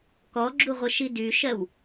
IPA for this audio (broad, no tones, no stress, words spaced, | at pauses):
kɔɡ͡ǁuʁʷəʃi dyʃɜw